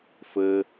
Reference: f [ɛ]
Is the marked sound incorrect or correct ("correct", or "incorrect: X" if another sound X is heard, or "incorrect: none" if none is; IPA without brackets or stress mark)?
incorrect: ɘ